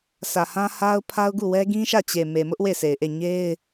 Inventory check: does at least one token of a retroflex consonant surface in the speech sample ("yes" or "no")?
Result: no